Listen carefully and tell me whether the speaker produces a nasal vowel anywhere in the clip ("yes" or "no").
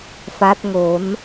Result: no